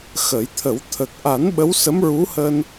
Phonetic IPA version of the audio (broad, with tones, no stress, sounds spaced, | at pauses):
x ə˨˩˦ j t̪ʰ ə˨˩˦ w t̪ʰ ə˨˩ k̚ ʔ a˨˩˦ n ɓ ə˧˥ w s ə˧˥ m ɹ u˧˥ h əː˧ n